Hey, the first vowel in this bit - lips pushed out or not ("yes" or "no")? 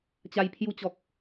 no